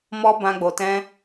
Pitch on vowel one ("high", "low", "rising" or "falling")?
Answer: high